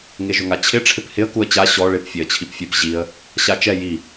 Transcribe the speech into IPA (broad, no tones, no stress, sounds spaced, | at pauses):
ŋ e ʒ ʊ ŋ a t͡ɕʰ ɪ ʈ͡ʂʰ ɪ p h ɪ ə̯ k u ə̯ t͡ɕ a ɕ ɔ ɭ ɪ p fʲ e ə̯ t͡ɕʰ i p fʲ e p ʑ i ə̯ | ɕ a t͡ʃ ɛ j i